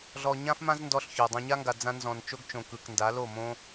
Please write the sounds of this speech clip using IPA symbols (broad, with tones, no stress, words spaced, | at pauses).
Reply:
ɮɔ˨ɲã˦fmã˦z ndɔ˧ɬço˨ dˤõ˧ɲa˦ŋɡa˨ d͡zã˧ nzɔ̃˨n t͡ʃo˦ɡt͡ʃõ˨kɯ˨knda˨˦ lo˦˨mõ˦